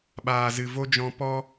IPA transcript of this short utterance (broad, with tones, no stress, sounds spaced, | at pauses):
ɓ aː˨ z ɨ˨ v o˦ d͡ʒ ɔ̃˧ p ɔ˦